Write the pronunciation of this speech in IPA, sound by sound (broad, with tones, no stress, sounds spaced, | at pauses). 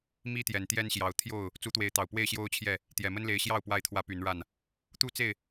m i˦ t̪ j ɛ˨˩ n t̪ j ɛ˦ n ɕ j ɑ˨˦ ʊ̯ t̪ʰ j o˥˨ ʊ̯ | t͡s u˨˦ t̪ w e˨˦ ɪ̯ t̪ ɑ˨˩ ʊ̯ p w e˥˨ ɪ̯ ɕ j o˦ ʊ̯ t͡ɕʰ j ɛ˥˨ | t̪ j ɛ˨˩ m ə˦ n l e˨˦ ɪ̯ ɕ j ɑ˥˨ ʊ̯ p w a˥˨ ɪ̯ t̪ʰ w ä˦ p y˨˦ n ɻ a˥˨ n | t̪ u˦ t͡s e˥˨ ɪ̯